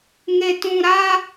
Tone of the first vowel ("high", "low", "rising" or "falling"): low